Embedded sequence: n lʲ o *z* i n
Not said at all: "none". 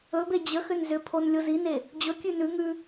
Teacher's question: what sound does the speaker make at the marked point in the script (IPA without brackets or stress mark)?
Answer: z